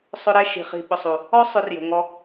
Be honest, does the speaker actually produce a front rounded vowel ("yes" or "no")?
yes